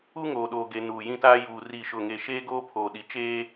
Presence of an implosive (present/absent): present